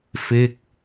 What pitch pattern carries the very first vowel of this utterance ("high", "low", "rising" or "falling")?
falling